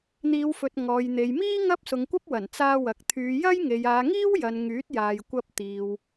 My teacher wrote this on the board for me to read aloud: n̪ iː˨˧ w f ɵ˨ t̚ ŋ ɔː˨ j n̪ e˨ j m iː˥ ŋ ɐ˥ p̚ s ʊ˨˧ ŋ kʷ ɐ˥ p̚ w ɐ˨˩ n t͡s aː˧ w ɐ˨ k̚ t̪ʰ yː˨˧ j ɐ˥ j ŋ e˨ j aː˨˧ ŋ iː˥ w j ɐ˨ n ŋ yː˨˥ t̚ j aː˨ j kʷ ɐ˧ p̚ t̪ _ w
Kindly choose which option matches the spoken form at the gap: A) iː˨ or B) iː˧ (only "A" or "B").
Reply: A